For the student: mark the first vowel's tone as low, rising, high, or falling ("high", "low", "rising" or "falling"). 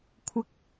rising